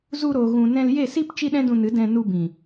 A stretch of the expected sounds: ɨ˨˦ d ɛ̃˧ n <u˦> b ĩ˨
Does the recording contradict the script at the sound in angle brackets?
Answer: yes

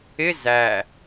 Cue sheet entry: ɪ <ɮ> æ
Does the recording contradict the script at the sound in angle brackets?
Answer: yes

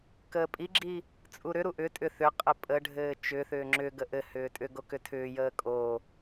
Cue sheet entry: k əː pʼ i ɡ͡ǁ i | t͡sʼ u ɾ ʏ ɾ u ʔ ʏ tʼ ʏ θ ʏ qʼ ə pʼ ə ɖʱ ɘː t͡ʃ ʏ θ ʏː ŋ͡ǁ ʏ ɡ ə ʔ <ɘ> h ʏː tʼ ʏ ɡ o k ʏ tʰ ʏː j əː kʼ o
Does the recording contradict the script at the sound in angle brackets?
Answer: no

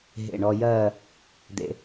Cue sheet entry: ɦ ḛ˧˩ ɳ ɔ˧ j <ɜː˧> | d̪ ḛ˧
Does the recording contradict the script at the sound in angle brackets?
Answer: yes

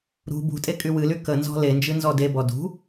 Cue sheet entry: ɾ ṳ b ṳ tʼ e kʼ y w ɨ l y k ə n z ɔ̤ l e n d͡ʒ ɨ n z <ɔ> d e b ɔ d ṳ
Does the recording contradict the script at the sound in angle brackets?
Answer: no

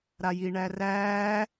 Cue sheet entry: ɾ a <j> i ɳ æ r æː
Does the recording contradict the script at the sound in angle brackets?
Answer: no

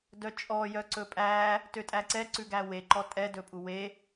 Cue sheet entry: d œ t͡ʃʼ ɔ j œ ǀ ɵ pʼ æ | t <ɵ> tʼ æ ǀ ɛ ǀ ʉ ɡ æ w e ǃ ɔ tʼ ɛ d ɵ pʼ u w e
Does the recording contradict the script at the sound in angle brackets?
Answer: yes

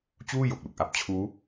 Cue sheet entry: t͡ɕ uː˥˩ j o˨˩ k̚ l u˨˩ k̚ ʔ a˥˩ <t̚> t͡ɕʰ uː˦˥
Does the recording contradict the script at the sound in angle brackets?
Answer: yes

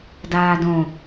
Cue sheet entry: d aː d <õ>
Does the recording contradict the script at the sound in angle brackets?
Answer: no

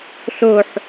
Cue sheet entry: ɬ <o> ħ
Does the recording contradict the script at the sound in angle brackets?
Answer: no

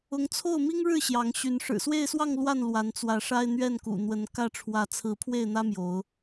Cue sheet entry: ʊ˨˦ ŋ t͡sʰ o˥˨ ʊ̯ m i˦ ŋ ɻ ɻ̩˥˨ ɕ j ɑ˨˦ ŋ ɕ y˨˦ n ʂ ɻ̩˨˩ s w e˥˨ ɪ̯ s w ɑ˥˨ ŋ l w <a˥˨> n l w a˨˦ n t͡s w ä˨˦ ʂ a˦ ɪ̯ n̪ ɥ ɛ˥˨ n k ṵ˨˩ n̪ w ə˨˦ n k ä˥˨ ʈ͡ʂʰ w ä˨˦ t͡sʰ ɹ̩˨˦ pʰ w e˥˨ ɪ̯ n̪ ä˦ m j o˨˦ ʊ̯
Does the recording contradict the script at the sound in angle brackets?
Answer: no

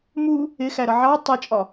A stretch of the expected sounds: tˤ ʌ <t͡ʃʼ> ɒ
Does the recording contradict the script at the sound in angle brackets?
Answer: no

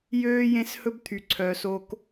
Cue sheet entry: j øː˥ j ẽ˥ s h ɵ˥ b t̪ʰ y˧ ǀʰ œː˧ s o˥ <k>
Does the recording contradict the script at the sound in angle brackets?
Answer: no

